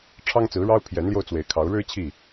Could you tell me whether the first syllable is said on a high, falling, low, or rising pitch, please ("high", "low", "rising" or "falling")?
high